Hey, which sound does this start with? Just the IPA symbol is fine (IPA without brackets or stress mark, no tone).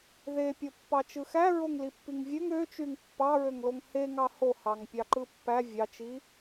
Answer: ð